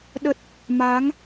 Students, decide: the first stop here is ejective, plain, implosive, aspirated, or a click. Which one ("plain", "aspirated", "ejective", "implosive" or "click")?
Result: implosive